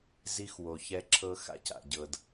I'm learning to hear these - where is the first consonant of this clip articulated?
tongue tip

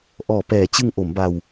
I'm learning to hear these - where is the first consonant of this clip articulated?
throat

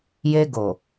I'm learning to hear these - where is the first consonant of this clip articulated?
palate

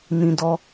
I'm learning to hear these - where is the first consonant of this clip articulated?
tongue tip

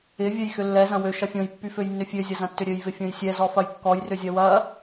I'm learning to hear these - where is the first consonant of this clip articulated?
lips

